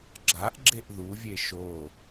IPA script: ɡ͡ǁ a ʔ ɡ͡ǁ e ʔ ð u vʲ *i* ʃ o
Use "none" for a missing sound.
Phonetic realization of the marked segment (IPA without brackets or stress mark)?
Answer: e